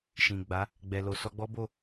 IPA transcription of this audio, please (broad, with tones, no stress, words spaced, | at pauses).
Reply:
ʃĩ˨ɡ͡ba˨˦ | ɡ͡bɛ˨lo˨ sɔ˧ɡ͡bɔ˦bo˦˨